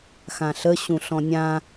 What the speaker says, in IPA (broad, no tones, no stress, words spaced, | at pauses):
xãɬə ɕũɬɔ̃nʲã